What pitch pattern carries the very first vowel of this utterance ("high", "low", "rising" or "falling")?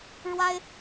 high